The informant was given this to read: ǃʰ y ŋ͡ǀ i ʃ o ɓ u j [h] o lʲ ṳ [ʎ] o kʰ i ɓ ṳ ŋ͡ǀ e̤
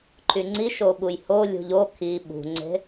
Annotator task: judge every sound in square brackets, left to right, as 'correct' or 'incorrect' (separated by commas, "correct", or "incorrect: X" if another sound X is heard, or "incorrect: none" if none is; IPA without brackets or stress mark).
correct, correct